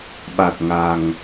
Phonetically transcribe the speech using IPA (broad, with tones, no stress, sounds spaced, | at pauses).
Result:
ɓ a˨˩ t̚ ŋ a˨˩ ŋ